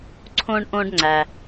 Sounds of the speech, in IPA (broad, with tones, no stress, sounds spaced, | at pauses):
ǀʰ õ˥ ɳ ʔ õ˥ ɖ ŋ͡ǀ æ˨